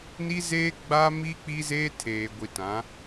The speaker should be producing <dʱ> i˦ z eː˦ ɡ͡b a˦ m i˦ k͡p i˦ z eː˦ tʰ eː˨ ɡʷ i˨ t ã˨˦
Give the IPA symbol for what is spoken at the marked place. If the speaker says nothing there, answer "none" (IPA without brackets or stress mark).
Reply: n